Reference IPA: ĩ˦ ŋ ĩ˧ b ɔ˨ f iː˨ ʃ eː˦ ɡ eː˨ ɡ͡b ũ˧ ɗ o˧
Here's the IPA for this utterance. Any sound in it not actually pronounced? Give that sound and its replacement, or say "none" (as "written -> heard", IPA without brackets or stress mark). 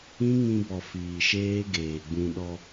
o˧ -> ɔ˧